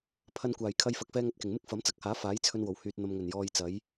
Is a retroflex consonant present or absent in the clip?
absent